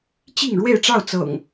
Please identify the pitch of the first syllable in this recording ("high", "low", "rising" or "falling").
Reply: falling